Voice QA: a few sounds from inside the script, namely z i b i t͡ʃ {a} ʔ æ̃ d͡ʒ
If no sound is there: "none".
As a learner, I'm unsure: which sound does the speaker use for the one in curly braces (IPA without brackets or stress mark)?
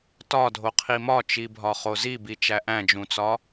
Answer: æ